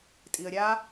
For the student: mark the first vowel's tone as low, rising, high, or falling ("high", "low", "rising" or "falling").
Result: low